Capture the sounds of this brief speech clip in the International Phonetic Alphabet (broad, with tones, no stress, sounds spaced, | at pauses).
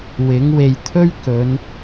w ɪ˨˥ ŋ w e˧ j t̪ʰ ɵ˥ ɥ k ɵ˨˧ n